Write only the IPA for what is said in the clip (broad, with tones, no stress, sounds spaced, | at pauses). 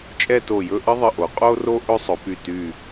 t͡ʃʼ ɛ˥˧ t o˧˩ j ɵ˥˧ ʔ ə˥ ðˤ ə˧˩ ʔ o˩˧ qʼ o˥ r o˥ ʔ ɵ˥ sˤ ɵ˩˧ p y˧˩ t y˧˩